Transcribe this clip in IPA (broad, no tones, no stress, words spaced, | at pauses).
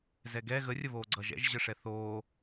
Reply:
zɛɡɛ ɣərʲəβoː ɡ͡ǀʌʒ ɛ̰ʒʑəʂɛ θoː